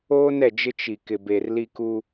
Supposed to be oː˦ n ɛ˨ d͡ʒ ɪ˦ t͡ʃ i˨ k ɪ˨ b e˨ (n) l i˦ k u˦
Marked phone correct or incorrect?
incorrect